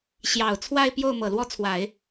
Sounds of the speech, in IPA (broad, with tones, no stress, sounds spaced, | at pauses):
ɕ j ɑ˨˩ ʊ̯ t͡sʰ w a˥˧ ɪ̯ p j o˥˩ ʊ̯ m ɤ˨˩ l w ɔ˥ t͡sʰ w a˨˩˦ ɪ̯